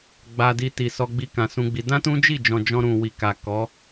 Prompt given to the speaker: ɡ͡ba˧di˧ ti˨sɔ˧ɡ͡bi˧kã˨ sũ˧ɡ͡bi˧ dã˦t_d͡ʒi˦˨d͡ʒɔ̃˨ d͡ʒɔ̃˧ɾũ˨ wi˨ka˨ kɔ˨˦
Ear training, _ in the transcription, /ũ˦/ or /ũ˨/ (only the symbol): ũ˦